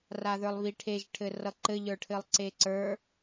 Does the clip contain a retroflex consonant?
yes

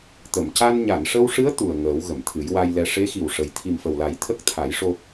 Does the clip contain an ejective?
no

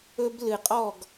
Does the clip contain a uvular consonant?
yes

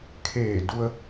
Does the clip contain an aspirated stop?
yes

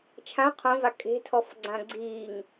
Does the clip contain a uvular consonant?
yes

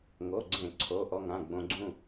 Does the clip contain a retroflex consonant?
no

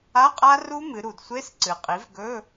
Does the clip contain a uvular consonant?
yes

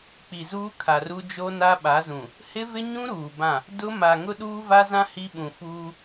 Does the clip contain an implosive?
yes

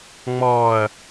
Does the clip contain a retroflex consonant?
no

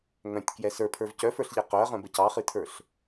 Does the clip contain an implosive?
no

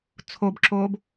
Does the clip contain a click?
yes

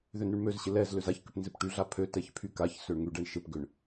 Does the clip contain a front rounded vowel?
yes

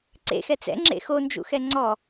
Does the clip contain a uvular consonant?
no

